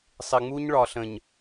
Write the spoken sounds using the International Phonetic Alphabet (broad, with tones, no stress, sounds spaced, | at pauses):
sˤ ɪ˨ ŋ͡m u˦ ɲ ɭ ɒ˨ ɬ ə̃˨ ɲ